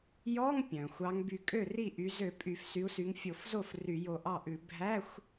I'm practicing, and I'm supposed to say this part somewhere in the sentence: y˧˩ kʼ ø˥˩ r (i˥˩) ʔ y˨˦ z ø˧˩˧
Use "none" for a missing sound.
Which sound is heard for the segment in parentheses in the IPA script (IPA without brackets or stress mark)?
i˥˩